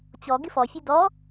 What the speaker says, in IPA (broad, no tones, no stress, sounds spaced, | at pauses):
t͡ɕ ɔ ɡ ɪ f ɔ fʲ e d ɔ